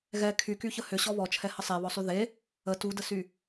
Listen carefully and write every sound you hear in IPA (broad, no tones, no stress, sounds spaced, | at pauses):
ɣ ɛ kʰ y k y ç ə h ʏ ɕ ɔ β ɔ t͡ʃʰ ɛ h ə sˤ e β ɔ sˤ y ð e | ə t u d ə s y